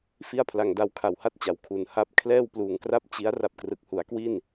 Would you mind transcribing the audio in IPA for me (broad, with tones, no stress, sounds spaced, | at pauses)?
f i˥˩ a̯ pʰ l a˧ ŋ d a˧ w kʰ a˨˩ w h a˥˩ t̚ t͡ɕ a˩˦ w kʰ u˩˦ n h a˦˥ p̚ kʰ l ɛː˥˩ w p l uː˨˩ ŋ k r a˥˩ p̚ t͡ɕ i˦˥ a̯ r a˥˩ p̚ k r ɯ˨˩ k̚ h u˩˦ a̯ k w i˥˩ n